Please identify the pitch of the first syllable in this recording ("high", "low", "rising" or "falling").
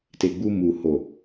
low